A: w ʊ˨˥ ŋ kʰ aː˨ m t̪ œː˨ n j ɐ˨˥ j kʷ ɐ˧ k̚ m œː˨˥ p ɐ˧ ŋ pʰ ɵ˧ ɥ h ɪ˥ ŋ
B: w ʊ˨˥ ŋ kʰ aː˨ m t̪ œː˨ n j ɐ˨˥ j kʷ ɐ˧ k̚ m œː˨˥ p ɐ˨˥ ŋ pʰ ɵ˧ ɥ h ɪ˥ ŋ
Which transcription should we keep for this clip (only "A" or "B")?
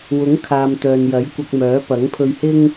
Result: B